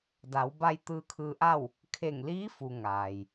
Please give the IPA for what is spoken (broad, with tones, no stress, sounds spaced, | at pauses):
d a˩˧ w b a˧ j t̪ ɯː˧ kʰ ɯː˧ ʔ a˥˨ w | kʰ e˧˩ ŋ l iː˧˥ f u˩ ŋ aː˩ j